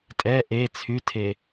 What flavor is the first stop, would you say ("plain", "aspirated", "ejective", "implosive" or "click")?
ejective